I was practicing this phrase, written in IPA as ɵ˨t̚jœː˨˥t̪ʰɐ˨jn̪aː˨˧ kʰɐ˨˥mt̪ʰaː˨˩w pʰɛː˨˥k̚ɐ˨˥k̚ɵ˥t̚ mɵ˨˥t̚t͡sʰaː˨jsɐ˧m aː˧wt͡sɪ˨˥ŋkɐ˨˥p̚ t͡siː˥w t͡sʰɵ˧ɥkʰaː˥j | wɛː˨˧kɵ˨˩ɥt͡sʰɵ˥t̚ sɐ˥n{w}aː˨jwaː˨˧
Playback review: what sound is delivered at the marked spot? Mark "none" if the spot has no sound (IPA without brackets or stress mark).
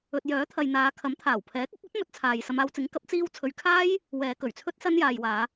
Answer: j